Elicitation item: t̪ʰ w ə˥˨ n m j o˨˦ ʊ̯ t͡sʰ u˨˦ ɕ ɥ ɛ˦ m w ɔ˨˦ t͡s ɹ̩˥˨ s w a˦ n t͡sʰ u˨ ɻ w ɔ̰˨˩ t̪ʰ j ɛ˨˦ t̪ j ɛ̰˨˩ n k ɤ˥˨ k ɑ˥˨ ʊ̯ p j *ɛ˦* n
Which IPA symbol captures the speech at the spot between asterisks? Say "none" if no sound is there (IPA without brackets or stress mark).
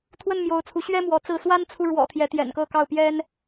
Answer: ɛ˦